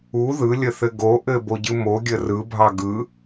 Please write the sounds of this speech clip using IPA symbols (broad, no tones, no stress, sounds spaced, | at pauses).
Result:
u ð ɯ lʲ ə θ ɘ ɡ o ʔ ɘ b o ɟ ɯ m o ɡʲ ə r ɯ bʱ ɑ ɡ ɯ